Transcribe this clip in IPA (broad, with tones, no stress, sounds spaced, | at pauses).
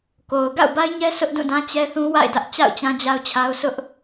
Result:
k o˨ ʊ̯ ɡ a̰˦˨ ʊ̯ b a˦ ɪ̯ ɲ ɛ˦ s ʊ˦ ʔ d ũ˦˨ d ã˦ t͡ɕ ɛ˦ θ ũ˦ w a̰˦˨ ɪ̯ d ä˦ ʔ t͡ɕ a̰˦˨ ʊ̯ t͡ɕ ã˦ d͡ʑ a˦ ʊ̯ t͡ɕʰ a˦ ʊ̯ s ʊ˦ ʔ